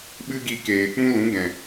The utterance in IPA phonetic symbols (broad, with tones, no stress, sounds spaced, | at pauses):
ɓ ɨ˦ ɡ i˧ k eː˨ k͡p ũ˦ l ũ˨˦ ɡ ɛ̃˨